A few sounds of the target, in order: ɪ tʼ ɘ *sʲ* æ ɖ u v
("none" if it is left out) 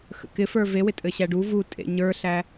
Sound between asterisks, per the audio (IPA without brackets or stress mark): ɕ